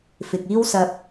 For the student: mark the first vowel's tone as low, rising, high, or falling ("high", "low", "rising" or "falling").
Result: low